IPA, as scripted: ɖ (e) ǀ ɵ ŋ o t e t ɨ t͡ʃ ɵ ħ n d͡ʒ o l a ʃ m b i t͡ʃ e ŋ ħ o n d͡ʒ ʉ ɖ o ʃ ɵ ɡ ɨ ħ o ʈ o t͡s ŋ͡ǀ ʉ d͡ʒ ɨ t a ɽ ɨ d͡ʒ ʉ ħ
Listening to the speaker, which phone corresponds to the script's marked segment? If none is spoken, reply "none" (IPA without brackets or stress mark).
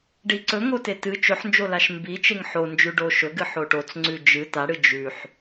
i